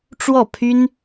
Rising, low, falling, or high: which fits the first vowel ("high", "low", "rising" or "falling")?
falling